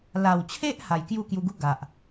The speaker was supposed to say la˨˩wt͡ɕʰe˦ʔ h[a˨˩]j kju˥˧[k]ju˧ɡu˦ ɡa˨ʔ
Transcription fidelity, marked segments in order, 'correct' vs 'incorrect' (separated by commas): correct, correct